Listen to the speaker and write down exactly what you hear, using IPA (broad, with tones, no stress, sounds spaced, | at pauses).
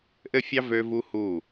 ʔ ɘ˦˨ fʲ ɑ˦ v ø˦ v u˦ h u˦˨